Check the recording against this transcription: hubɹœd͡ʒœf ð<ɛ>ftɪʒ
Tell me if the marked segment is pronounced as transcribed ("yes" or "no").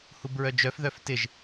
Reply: no